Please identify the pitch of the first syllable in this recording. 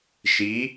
rising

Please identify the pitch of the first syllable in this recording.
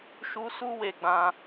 high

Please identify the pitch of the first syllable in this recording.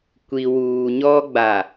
low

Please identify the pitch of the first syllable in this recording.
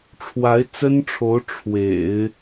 rising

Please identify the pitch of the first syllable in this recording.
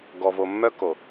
low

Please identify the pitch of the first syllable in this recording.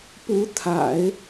rising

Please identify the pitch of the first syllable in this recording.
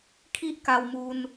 high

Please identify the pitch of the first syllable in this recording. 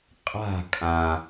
falling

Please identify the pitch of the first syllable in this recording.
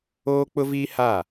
high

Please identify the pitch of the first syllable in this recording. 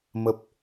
low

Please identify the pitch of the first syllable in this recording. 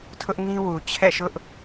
high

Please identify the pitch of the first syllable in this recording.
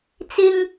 high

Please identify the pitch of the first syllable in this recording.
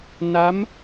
rising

